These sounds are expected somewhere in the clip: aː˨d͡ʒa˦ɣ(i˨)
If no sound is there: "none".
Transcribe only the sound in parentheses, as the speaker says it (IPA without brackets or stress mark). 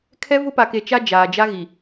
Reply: i˨